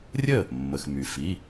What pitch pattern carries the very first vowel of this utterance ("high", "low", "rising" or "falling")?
falling